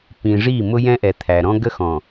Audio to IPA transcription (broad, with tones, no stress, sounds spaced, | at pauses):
p ĩ˨ ʐ i˦˨ m ʊ˦ j ɛ̃˦ ʔ ɛ˨ t̪ʰ æ˨ ɾ ɔ̃˦ ɡ ə˦ x ɔ̃˨